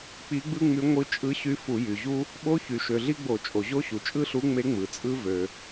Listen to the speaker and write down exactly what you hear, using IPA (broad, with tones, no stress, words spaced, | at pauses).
k͡pi˧˥ɡ͡bɯ˥ŋ͡my˧˥ ŋʷɯ˧˥t͡ʃʼɯ˧˥ɕy˧˥ fu˧˩˧jy˩ʑu˥ | ɓo˧˥çy˩ʃø˩ ɮi˥ɡ͡bo˧˩˧t͡ʃʼo˩ʑo˥ ɕu˩t͡ʃʼɯ˥ɬu˧˥ŋ͡me˧˥ ŋ͡mɯ˩t͡sʼɯ˥ vø˩